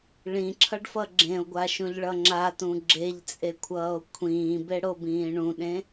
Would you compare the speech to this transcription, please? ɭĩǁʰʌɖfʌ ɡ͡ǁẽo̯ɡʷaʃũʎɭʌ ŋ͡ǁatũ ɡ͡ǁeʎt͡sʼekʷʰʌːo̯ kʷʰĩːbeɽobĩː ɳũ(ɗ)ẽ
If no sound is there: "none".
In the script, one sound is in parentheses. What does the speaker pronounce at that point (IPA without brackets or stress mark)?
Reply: ɗ